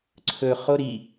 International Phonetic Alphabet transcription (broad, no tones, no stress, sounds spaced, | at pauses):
ǀʰ ɵ χ o ɾ i